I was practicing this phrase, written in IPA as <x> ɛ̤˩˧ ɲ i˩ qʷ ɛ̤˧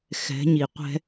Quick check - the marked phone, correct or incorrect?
correct